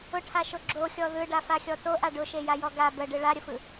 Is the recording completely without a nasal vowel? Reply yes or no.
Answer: yes